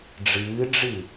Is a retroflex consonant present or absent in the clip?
present